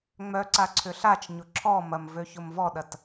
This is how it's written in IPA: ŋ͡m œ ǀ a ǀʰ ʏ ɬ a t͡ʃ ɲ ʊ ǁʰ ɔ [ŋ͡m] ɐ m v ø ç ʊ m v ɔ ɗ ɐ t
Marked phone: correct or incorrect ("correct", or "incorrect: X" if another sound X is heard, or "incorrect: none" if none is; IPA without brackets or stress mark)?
incorrect: m